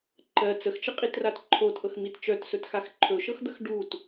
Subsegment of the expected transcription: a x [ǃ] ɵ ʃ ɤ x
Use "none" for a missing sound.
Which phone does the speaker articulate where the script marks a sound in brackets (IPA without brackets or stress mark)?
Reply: ǃʰ